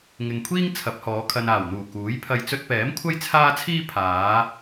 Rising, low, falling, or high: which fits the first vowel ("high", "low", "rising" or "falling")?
low